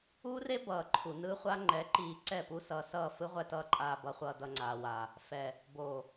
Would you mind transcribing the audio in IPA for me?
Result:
uː˦ r e˦ b ʌː˨ ǃʰ u˨ n ɯ˦ χʷ a˦ ŋ͡ǃ ɛ˨˦ ǃ iː˨ ǀ ɛ˦˨ p u˦ s ʌː˨ s ʌː˦˨ f ɯ˦ ʁʷ ɛ˦ t ʌː˦ ǃʼ aː˨ b ʌ˨ χʷ ʌː˨ d ʌ˨ ŋ͡ǀ aː˨ w a˨ | f ɛ˨ | b oː˨

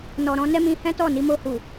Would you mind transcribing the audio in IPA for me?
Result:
n ɔ˨ ɾ ɔ̃˧ n ɛ˦ m ĩ˧ h ɛ̃˦ t ɔ˦˨ n i˧ m o˧ h u˨

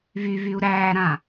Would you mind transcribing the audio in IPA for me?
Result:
v y v y u̯ ɾ æː ɾ ã

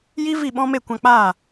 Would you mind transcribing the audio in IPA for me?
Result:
j i˦ v i˦˨ ɓ ɔ̃˦ m e˦˨ kʷ ã˧ k͡p aː˦˨

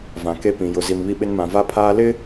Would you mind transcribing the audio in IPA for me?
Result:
v ã˨ k e˦ p ĩ˨ j ʊ˨ z i˨ m β i˦ ɓ ɪ˦ n m ã˨ v a˦ pʰ aː˦ l ɪ˦

